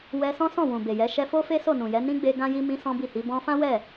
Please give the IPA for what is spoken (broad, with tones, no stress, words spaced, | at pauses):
wɛ˧ sɔ̃˦ sɔ̃˦˨wũ˨ be˨jɛ˨˦ ʃɛ˧fo˦fe˦ so˦˨nũ˨jɛ˨˦ nĩ˦ɡ͡be˧ ɡã˦ji˦ mĩ˦sɔ̃˦bi˦˨hi˨˦ bɔ̃˧ fã˦wɛ˦˨